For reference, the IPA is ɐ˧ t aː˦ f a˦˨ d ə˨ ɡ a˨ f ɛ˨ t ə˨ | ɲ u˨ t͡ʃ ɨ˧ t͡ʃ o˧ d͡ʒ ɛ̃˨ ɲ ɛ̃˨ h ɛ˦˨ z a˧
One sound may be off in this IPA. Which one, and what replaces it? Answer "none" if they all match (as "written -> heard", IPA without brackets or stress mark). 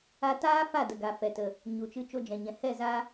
ɐ˧ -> a˧